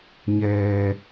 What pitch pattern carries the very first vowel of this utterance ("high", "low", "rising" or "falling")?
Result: low